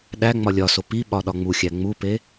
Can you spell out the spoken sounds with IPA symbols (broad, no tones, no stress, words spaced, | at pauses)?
ɗæ ŋ͡mɒlʲɒso piɓɒ ɗɒŋ͡muxʲæ ŋ͡mupe